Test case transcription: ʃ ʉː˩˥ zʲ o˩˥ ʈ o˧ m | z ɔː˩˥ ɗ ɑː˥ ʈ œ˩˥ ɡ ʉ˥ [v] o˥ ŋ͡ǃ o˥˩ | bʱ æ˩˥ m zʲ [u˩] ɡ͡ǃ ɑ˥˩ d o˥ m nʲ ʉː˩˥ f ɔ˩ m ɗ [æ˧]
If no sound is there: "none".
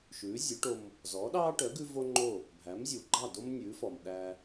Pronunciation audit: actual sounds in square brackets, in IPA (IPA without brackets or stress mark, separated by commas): v, u˩, æ˧